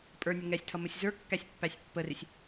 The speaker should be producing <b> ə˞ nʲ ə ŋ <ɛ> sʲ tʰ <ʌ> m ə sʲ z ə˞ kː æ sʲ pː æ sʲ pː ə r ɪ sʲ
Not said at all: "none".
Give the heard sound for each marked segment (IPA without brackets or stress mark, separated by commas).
pʼ, ɛ, ʌ